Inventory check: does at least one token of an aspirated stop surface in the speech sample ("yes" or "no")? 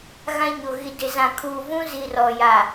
yes